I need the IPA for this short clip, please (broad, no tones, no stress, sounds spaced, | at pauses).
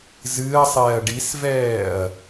z ɨː ɐ̯ sˤ ɛː ɐ̯ ɖ i s v ɛː ɐ̯